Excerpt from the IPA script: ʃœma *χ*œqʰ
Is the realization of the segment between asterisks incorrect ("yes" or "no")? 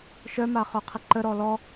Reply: no